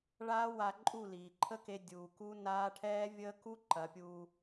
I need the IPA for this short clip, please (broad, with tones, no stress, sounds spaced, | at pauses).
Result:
ɭ aː˦ w a˧ ǃʼ u˦˨ l iː˨ ǃʰ ə˦ k e˧ dʲ uː˨ k u˦ n aː˦ ʈʰ ɛː˦ vʲ əː˦ k u˦ ǃ ɐ˨˦ pʲ uː˧